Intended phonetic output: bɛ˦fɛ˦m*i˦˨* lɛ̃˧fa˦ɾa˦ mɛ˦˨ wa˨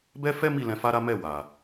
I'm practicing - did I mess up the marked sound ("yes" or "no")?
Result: no